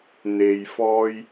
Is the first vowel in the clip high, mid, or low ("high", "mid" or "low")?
mid